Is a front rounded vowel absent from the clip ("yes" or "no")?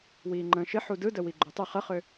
no